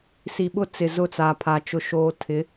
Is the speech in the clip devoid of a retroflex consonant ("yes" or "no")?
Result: yes